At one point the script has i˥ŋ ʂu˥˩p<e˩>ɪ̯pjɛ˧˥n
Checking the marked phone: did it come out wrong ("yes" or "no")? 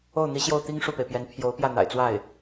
no